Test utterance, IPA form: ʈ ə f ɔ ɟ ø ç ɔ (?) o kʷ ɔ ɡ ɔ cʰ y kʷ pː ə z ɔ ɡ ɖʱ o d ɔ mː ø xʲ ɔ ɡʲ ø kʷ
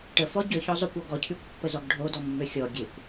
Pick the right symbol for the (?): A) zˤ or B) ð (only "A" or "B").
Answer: A